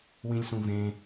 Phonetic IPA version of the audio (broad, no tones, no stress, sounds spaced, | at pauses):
w ĩ lʲ s ũ v ẽ